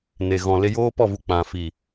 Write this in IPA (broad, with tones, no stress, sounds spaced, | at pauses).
n e˨ ɣ ɔ̃˨ l e˧ j oː˦ p ɔ˦˨ v u˨ k͡p ã˨ f i˨